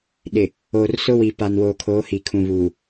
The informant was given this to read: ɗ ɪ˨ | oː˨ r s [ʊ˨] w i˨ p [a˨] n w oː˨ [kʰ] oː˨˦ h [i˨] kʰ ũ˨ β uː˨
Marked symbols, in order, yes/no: no, yes, yes, yes

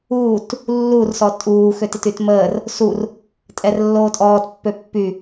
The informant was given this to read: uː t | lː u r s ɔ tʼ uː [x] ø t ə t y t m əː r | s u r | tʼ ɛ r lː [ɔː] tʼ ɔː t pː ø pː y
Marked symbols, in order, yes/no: yes, no

